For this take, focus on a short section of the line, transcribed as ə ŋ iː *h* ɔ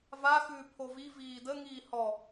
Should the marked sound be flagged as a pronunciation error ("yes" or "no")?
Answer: no